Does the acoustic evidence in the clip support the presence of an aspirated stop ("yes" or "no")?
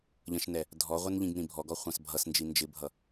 no